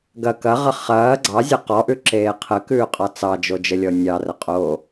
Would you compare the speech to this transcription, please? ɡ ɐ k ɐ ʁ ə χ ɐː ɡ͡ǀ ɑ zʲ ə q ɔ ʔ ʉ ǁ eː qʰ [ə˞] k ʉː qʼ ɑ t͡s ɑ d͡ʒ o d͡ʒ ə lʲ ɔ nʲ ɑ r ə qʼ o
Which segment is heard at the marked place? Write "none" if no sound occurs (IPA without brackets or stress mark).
ə